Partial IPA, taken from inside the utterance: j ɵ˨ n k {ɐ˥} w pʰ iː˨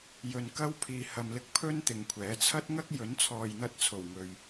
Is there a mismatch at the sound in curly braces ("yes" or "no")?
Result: no